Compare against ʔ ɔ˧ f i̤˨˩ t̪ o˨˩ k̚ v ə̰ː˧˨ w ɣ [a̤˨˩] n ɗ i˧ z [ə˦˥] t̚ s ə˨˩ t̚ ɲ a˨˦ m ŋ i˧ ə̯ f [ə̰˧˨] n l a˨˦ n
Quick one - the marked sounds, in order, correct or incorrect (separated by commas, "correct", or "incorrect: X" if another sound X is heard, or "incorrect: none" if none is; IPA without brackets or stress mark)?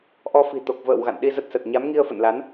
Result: incorrect: a̰˧˨, correct, correct